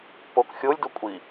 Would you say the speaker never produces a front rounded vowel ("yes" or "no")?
yes